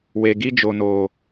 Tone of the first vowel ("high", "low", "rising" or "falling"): low